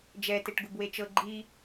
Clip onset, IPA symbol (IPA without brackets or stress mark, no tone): d͡ʒ